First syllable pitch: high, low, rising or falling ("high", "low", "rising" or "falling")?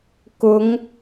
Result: rising